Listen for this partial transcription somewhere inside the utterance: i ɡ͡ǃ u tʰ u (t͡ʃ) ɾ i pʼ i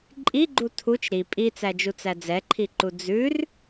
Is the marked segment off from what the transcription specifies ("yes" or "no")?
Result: no